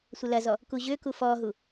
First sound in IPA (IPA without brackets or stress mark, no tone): sʷ